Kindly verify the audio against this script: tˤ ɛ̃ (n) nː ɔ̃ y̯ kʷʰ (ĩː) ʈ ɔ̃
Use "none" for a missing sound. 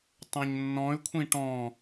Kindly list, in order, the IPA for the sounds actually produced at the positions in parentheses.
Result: ɲ, ĩ

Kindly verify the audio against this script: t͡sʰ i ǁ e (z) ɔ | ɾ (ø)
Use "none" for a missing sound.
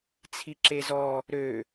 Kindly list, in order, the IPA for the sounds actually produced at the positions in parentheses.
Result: z, ø

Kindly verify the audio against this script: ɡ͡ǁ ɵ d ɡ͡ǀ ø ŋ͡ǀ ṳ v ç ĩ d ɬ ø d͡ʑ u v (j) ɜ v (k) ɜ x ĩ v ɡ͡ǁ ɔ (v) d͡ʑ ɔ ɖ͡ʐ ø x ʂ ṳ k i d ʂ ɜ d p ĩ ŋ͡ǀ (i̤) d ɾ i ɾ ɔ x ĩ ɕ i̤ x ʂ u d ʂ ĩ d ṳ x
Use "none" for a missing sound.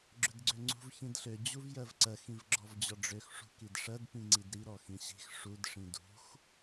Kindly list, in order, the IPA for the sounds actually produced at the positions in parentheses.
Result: j, ǀ, v, i

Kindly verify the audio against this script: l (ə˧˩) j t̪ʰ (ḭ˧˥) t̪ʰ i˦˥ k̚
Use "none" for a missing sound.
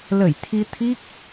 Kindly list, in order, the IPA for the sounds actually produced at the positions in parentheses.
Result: ə˧˩, i˧

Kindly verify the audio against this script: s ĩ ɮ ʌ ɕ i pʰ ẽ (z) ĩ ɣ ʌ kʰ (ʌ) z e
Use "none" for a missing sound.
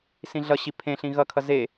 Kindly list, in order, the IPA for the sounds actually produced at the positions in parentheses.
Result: ɬ, ʌ

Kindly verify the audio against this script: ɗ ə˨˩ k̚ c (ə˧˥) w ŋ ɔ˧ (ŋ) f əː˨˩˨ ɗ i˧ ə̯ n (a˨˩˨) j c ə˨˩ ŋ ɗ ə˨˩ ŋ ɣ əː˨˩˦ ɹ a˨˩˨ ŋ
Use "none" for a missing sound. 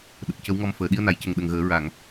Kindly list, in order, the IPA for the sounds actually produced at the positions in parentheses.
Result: ə˧˥, m, a˨˩˨

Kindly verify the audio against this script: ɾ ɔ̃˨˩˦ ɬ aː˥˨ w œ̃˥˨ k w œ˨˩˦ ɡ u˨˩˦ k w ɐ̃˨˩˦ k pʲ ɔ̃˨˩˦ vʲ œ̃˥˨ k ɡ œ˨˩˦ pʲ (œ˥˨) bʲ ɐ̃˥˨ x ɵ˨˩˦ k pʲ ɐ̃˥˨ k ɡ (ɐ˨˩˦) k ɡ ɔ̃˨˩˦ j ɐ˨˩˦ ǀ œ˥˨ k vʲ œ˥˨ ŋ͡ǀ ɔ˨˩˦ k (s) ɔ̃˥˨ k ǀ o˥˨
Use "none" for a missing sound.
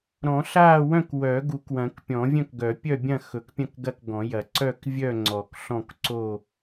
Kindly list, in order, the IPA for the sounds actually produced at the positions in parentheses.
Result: œ˥˨, ɐ˥˨, ɬ

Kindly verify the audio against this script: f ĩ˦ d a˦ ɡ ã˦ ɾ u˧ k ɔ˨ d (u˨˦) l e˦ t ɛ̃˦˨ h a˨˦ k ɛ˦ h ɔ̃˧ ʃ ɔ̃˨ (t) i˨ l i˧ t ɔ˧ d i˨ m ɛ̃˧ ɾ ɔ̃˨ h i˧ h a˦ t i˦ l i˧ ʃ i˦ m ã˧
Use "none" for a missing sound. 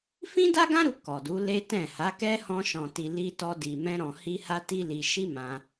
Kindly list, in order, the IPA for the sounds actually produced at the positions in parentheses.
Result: u˨˦, t

